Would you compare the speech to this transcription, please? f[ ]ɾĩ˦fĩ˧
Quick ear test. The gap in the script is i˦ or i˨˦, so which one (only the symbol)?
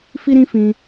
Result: i˦